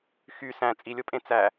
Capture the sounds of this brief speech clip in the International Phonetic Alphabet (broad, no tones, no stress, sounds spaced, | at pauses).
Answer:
x y s æ̃ t͡sʼ i lʲ o pʼ ẽ t͡s æ